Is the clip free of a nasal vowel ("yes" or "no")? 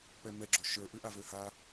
yes